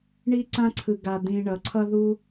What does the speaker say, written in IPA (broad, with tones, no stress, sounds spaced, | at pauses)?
ɳ i˥ ǀ ã˥ ǀʰ ɯ˧ ɡ a˧ d̪ ĩ˧ ɳ ʌ˩˧ ǀʰ ʌ˥ ð u˥